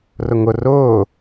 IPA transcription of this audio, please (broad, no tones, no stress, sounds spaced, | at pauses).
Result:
r ʊ ŋ ʊ r ʊː